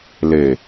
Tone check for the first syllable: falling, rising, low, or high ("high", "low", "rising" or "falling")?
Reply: low